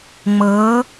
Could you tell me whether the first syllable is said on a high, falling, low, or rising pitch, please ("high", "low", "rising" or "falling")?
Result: rising